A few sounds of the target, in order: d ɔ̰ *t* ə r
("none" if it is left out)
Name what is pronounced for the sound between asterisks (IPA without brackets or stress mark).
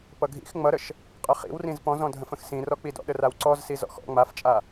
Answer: ɗ